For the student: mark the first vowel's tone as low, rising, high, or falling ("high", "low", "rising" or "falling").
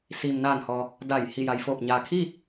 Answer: low